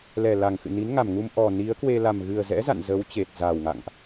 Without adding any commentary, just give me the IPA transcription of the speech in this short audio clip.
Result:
lɛ˨˩la˨˩ŋxɨ̰˧˨ni˨˦n ŋa˨˩mŋu˧m ʔɔ˨˩ ni˨˦ə̯kwe˧ la˨˩mɣɨ˨˩ə̯zɛ̰˧˥za̰˧˨n zə˨˦w t͡ɕe˨˩t̚ za˨˩wŋa̰˧˨ŋʔ

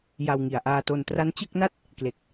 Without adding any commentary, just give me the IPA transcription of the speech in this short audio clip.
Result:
ja˧wŋi˨˩a̯ʔaː˧to˧n tra˦˥nt͡ɕɯ˥˩k̚na˥˩t̚ | kle˨˩k̚

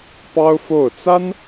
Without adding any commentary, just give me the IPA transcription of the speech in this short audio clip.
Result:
pɑ˥ʊ̯fo˥˩ʊ̯ t͡sa˥n

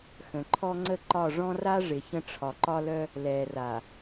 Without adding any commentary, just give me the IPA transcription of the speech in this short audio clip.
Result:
xə̃˨ ǃʰɔ˦ŋ͡ǀə˦ǃɒ˦˨ ʐɔ̃˦ra˦ ʐɪ˨çə̃˦ ʈ͡ʂʰɒ˨ǃɒ˦lœ˦ | lɛ˨ra˨

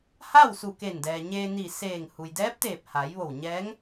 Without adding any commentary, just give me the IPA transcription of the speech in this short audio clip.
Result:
ha˥˨w su˧˩ke˧˩ndɛː˩ ɲeː˧ni˧˩seː˧˩ŋ hu˩jdɛː˧˥p̚t̪eː˧˩p̚ ha˩˧jʋo˧˩wɲɛː˧˥ŋ

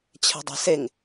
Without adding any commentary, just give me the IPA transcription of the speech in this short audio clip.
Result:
t͡ɕʰɛ̤dˤɛ̤seŋ

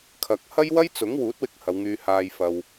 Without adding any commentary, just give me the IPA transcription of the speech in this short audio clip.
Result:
kʰɐ˨k̚ hɐ˥j wɐ˥jt͡sʊ˨˥ŋwuː˨˥t̚wɪ˧k̚ hɐ˨˧wŋyː˧haː˧jfɐ˧w

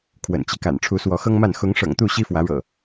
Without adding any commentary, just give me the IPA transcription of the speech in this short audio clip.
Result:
kʰwə̰˨˩nt͡ɕi˦ka̰˨˩n ʈ͡ʂʰu˨˦swɔ˨˦xɤ˦ŋma˥˨n xʊ˨˦ŋʂɤ̰˨˩ŋt̪u˥˨ ɕi˦fwä˨˦ɻɤ̰˨˩

